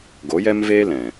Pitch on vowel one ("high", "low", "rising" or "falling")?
rising